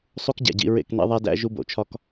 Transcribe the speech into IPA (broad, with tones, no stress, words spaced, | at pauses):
sˤu˦kɟæ̰˨ɟḭ˦˨ɹḛ˦˨k nḛ˦ðˤæ˦dæ̰˦ ʒu˦bo̰˨t͡ʃʰɒ˦k